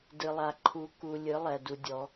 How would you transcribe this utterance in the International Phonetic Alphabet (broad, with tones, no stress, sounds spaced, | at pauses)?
d ɨ˨ lˠ a˨ ǃʰ u˧ k u˧ lʲ ɨ˨˦ lˠ ɛ˨ d u˧ dʲ ɔ˨˦